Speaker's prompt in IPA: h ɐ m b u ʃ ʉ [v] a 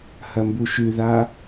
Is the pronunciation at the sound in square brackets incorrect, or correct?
incorrect